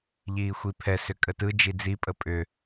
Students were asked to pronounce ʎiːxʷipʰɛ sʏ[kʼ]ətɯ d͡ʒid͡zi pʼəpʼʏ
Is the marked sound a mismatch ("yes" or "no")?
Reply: no